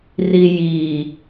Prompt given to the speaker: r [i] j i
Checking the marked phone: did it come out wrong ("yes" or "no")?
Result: no